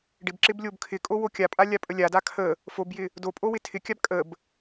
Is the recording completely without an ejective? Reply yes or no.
no